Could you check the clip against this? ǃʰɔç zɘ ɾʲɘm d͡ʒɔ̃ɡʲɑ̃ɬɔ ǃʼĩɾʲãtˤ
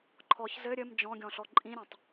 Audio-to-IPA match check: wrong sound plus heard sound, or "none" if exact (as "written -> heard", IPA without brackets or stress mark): ɑ̃ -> ɔ̃